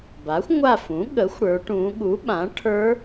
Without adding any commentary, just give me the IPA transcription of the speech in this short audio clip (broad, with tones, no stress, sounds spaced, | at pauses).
b a˩˥ xʷ ŋʷ a˦˨ f ũ˩˥ ɠ ə˩˥ xʷ ɽ ə˞˩˧ ʈ ũ˩˧ ɠ u˩˥ ɓ ã˩˥ ʈʰ ə˞˦˥